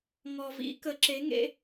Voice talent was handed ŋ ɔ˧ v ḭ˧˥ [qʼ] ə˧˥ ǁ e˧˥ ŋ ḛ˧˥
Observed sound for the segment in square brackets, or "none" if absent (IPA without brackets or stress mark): k